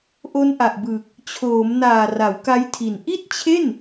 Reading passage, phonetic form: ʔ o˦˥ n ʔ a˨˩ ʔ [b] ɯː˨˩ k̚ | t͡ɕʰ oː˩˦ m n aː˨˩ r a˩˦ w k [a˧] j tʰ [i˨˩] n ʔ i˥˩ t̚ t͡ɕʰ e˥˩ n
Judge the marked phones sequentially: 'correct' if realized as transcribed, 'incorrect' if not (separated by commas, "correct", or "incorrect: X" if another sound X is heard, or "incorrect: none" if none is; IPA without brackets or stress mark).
correct, incorrect: a˦˥, correct